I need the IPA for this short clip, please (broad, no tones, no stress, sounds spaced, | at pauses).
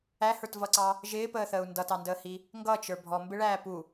æ h ə˞ t v ʌ ǀ ɑ | ʒ ɪː p əː θ əː u̯ n d ʌ t ɑ n d əː h i | ŋ ɡ ʌ t͡ʃ ə˞ bʱ ɔ m b ɪ ɭ æː p u